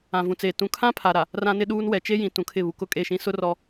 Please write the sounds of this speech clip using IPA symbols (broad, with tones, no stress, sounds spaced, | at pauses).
ã˨ v ũ˨ t͡s eː˨ t ũ˨ kʰ ã˦ pʰ a˨ ɾ a˨ | r ã˦ n ɪ˦ ɗ uː˦ n w ɛ˨ t͡ʃ e˦ j ĩ˨ t ũ˨ kʰ ɪ˦˨ β u˨ k ʊ˦ kʼ e˦˨ ʃ ĩ˦ s ʊ˦ r ɔ˦